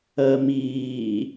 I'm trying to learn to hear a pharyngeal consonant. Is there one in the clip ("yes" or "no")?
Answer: no